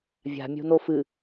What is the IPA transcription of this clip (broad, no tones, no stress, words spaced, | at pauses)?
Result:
vʲa̤mʲo̤no fɨ